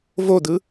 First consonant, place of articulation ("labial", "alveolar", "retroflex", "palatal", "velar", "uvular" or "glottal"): labial